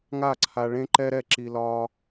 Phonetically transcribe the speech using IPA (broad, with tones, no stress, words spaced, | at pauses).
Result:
ŋa˦˨ǀʰa˧ ɭẽ˦ ǃɛ˦ɾɛ˦˨ǁi˧ lɒ˦